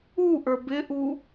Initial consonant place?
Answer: glottal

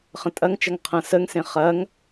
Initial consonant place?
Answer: uvular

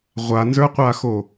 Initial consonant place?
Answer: uvular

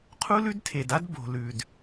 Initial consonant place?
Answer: uvular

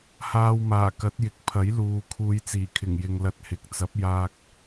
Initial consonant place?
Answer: glottal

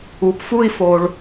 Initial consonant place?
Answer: labial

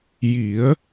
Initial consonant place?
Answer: palatal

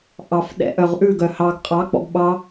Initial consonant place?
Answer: glottal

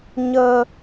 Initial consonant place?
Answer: palatal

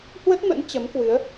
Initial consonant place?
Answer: glottal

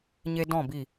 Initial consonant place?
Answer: palatal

